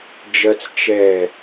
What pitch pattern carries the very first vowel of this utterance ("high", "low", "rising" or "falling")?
high